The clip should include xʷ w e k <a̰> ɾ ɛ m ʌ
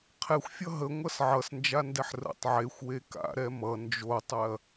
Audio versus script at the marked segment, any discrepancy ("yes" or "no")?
no